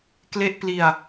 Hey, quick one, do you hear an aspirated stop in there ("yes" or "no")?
no